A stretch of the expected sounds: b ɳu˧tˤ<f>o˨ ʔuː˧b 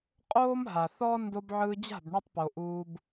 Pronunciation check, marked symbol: incorrect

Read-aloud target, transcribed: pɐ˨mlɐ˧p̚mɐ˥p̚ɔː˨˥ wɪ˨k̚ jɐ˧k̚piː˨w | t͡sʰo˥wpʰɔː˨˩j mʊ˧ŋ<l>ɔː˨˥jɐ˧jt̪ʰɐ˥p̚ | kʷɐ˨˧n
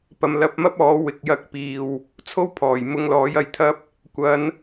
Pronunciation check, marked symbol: correct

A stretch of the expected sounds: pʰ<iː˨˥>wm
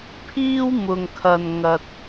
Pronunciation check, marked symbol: incorrect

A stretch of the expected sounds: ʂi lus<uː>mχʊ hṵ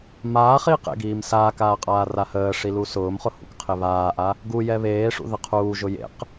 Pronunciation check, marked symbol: incorrect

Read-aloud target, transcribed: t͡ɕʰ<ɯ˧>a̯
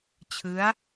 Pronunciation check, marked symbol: incorrect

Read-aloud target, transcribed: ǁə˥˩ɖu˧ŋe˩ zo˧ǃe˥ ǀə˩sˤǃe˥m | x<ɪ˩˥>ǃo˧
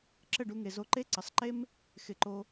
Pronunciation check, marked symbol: correct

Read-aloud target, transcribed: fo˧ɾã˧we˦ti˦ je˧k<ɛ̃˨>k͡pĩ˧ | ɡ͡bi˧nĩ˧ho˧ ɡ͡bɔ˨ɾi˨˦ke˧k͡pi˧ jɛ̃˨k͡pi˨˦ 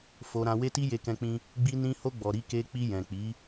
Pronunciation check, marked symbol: incorrect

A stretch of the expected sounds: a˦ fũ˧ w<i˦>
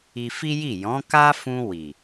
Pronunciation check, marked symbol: incorrect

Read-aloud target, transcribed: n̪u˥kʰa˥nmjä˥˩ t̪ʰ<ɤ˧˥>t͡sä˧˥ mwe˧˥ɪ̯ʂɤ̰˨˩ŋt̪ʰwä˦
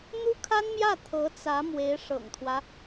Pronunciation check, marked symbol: correct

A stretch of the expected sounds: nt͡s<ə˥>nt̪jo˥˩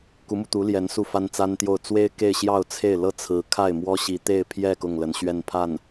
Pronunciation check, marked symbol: incorrect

